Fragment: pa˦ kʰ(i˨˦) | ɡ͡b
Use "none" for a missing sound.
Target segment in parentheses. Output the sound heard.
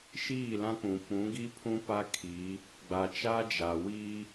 i˨˦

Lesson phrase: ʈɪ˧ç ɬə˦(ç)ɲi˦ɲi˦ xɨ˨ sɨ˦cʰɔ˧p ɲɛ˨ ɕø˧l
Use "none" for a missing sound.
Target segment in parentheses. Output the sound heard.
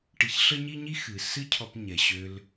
none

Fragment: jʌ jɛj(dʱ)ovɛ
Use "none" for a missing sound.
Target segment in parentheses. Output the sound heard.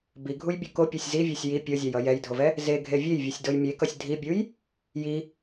dʱ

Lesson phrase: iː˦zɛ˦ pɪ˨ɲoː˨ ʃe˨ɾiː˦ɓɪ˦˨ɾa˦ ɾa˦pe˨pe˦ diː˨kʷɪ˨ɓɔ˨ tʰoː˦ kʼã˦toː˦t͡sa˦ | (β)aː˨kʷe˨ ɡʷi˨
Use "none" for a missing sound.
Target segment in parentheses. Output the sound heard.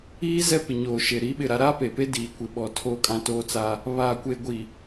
β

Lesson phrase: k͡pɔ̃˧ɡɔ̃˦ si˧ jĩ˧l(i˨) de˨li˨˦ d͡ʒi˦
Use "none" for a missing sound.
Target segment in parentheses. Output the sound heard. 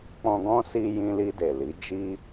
i˧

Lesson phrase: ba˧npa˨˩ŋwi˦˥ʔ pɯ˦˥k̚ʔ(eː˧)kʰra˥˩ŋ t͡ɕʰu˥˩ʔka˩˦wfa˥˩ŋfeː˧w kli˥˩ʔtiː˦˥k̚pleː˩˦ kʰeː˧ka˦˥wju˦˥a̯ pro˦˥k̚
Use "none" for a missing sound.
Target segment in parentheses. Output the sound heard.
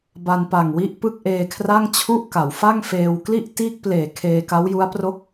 eː˧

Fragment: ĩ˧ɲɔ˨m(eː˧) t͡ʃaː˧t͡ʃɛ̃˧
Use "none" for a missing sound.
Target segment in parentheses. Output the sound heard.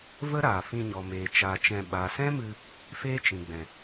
eː˨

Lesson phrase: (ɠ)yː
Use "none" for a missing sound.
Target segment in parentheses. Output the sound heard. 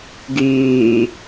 ɡ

